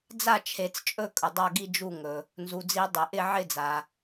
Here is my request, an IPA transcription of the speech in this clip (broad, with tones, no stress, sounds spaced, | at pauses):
d͡z a˥˨ t͡ʃʰ e˨˩˦ t͡s t͡ʃʼ ɵ˥˨ kʼ ɵ˩ dˤ a˥˨ ɡ i˥˨ d͡ʒ u˥˨ ŋ ɵ˩ | n z u˩ d͡z i˨˩˦ dˤ ɪ˩ ʔ ɪ˥˨ ʕ ɪ˥˨ d͡z a˩